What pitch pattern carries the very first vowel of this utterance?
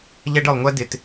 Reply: high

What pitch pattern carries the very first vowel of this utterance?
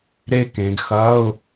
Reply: high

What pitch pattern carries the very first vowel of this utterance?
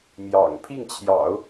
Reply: low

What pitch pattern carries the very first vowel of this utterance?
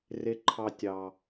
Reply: low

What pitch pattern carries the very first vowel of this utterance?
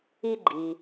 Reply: high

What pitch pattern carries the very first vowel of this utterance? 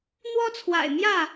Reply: high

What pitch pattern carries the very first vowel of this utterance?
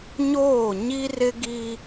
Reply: falling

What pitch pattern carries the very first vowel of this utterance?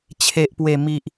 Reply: low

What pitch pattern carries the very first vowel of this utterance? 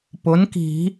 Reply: rising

